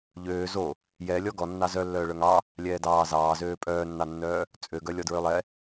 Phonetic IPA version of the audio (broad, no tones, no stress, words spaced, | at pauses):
ʎøː zo | jɛ lʲɔɡɔ nːɑzœ lːœːɭœŋɑ | lʲɛːdɑː zɑːzøː pʼœːnːɑnːœː | t͡sʼøɡœ lʲɔdɹølˠɛ